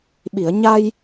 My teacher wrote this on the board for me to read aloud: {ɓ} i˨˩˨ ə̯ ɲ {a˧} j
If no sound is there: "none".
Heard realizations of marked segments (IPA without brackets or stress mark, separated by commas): ɓ, a˧